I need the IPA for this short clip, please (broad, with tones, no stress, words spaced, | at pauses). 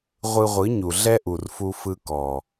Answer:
ʁʷɯ˧ʁʷɯ˨˦ɲu˨ ɮɛ˦ʔu˨rfu˧ fɯ˧kɔ˨